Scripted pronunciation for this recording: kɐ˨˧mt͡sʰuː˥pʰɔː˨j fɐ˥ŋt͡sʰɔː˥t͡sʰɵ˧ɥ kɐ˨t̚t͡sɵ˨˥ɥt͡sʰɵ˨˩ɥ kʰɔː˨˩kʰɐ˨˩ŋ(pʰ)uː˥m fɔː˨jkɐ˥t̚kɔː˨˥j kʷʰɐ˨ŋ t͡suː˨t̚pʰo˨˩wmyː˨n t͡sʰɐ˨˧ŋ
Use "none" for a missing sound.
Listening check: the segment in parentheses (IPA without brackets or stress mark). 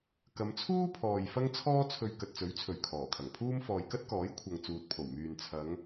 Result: pʰ